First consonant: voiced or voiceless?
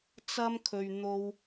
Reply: voiceless